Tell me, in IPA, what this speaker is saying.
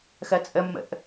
x ɜ t͡sʼ ə mː ə̰ ʔ

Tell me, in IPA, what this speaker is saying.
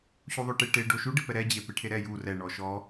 ɕ u ðˤ o ʈ e ʈ e ɖ o ʃ u ɖ ɪ p ɛ ɾ ɛ d͡ʑ e p e ʈʰ e ɾ ɛ j u r ɛ ɳ ɔ ʃ ɔ

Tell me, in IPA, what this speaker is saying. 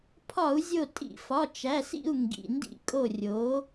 pʰ ɒ˧˩˧ u̯ zʲ o˧˩ tʼ ḭ˧˩˧ f ɒ˩˧˩ t͡ʃ æ˩˧˩ s ḭ˥˩ u̯ ŋ ɡ ḭ˩˧˩ n d ḭ˧˩ kʼ o˧˩ rʲ o˩˥

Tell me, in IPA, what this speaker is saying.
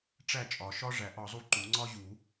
ʈ͡ʂ æ˥˩ t͡ʃʼ ɒ˨˩˦ ʃ ɒ˥ ʐ æ˨˩˦ ʔ ɒ˨˩˦ zˤ u˥˩ ǃ u˨˩˦ ŋ͡ǀ ɒ˥ ʑ u˨˩˦

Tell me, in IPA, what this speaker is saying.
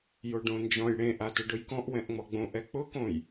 j o ɖ õ n d͡ʒ ɔ̃ j ɽ ẽ ʔ a t ʊ ɖ ʊ j k ɔ̃ ʔ w ɛ̃ ʔ ŋ͡m ɔ ɡ͡b õ ʔ ɛ k͡p ʊ k õ j

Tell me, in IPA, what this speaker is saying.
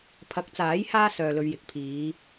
pʰ ɐ˨˥ k̚ t͡s aː˨˥ j h aː˥ s œː˨ l ɵ˨ ɥ j ɪ˨ k̚ pʰ iː˨˧

